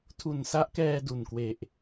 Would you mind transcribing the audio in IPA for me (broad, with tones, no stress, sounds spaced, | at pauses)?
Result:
tʰ u˨˩ n s a˦˥ ʔ k ɛː˧ d u˨˩ n k w e˨˩ ʔ